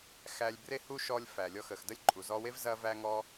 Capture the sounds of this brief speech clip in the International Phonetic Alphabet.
x æ˧ lʲ b r e˥ h u˥ ʃ ɔ˧ lʲ f æ˩ lʲ ɔ˧ x ə˩ x d ə˥ lʲ ǃʼ u˩ z ɔ˧ w e˥ v z ɐ˥ v æ˥ ŋ ɔ˥

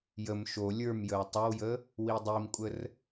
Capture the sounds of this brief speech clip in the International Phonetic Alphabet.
j ə m ʃ o lʲ ə˞ m j ə w tˤ ə w j ə | w i dˤ i m kʷʼ ə r

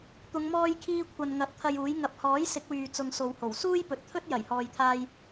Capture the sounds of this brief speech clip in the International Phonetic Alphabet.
t̪ ʊ˨˧ ŋ m ɔː˧ j kʰ iː˧ kʷʰ ɐ˨ n ŋ ɐ˨˥ t̚ t̪ʰ ɐ˧ j uː˨˥ j ŋ ɐ˨˥ p̚ h ɔː˨˥ j s ɪ˨˥ k̚ w yː˨ t͡s ʊ˧ ŋ s o˨˧ w h o˨˩ w s uː˥ j p ɵ˨˥ t̚ t̪ʰ ɵ˥ t̚ j ɐ˨˩ j h ɔː˨ j t̪ʰ aː˧ j

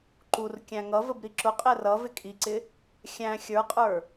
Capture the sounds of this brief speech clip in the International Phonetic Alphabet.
ǃ u r kʲ æ̃ ŋ ʌ v ə b ɾ i ǁ ʊ qʼ ɛ r ʌ v ɪ kʼ i ǀ ɪ | xʲ æ̃ xʲ ə˞ qʼ ə˞

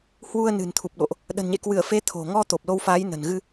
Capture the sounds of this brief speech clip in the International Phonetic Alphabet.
h w u˧ ə̯ n ɨ̤˨˩ n t̪ʰ u˨˩ p̚ ɗ o̰˧˨ ʔ | ɗ ə̤˨˩ n ɲ ḛ˧˨ k w ɨ˧˩ ə̯ f e˨˦ t̪ʰ o̤˨˩ ŋ ɔ˧ t̪ o˨˩ p̚ l o˧ w f aː˨˦ j n ə̤˨˩ n ɣ ɨ˧

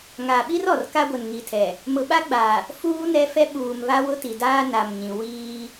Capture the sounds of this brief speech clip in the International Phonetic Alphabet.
ŋ a˨ ɓ i˦ r ɔ˨ r k a˦ ɡʷ ɛ˨ n ŋ i˨ tʰ ɛ˨ | m ʊ˨ ɓ a˦ ɡ͡b a˨ | f uː˦ n ɛ˦ f ɛ˦ ɓ uː˨ m β a˦ w ʊ˦ t i˨ d aː˦ n a˨ m ɲ ĩ˨ w iː˦

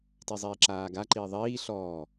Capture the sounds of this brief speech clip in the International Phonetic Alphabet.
t i zˤ iː ǁ aː ɡ a ǃ iː ðˤ iː ɬ ɔː

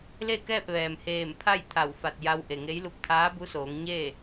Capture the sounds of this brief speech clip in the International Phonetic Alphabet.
l e˥˨ k ɛː˥˨ p̚ ʋ ɛː˩ m h eː˧˩ m pʰ a˥˨ j t̪ʰ a˧˩ w f a˧˩ t̚ j a˧ w ʔ e˩ ŋ e˧˥ j l u˧ p̚ t̪ʰ aː˧˥ b u˧˥ s oː˩˧ ŋ ɲ e˥˨

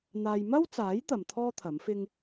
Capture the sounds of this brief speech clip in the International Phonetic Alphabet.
n̪ aː˧ j m ɐ˥ w t͡s aː˨˥ j t̪ ɐ˨ m t̪ʰ ɔː˥ t̪ʰ ɐ˨˥ m f ɪ˥ ŋ

